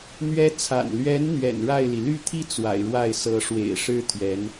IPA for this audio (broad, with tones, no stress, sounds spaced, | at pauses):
n̪ ɥ ɛ˧˥ t͡sʰ a̰˨˩ n l ɥ ɛ˧˥ n n̪ ɥ ɛ̰˨˩ n ɻ a˥˩ ɪ̯ l i˩ l y˥˧ t̪ʰ i˥˩ t͡s w a̰˨˩ ɪ̯ ɻ w a˥˩ ɪ̯ s ɤ˧˥ ʂ w ḛ˨˩ ɪ̯ ʂ ɻ̩˥ t̪ʰ ɥ ɛ˧˥ n